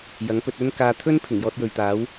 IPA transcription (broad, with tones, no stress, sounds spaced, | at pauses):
j ɐ˨˥ ŋ p ɵ˧ t̚ ɵ˥ n k aː˧ t̪ʰ ɵ˥ n pʰ ɪ˨˩ ŋ j ɔː˧ t̚ j ɵ˨ ɥ t̪ aː˨˥ w